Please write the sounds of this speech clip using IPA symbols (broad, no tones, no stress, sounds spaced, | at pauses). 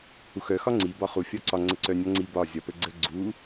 h u x œ x ɒ ŋ͡ǀ i b ɒ χ u fʲ ɒ ǀ ɒ ŋ͡ǀ ə ǀ œ nʲ ɒ ŋ͡ǀ i b ɒ zʲ ɒ p ə ɡ͡ǀ ə ɡ͡ǀ u